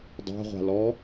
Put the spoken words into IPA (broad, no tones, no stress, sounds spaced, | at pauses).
dˤ a̤ ʁʷ a̤ l ɔ